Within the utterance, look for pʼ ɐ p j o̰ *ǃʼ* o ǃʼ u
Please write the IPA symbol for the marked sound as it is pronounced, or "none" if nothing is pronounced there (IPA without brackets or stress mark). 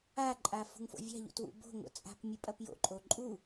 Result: ǃʼ